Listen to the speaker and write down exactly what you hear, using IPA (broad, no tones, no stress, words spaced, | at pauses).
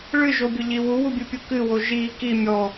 ɭɨʒobʲʊʎi wuwubʲɨpʲu kɨwo ʒi ki mʲɔ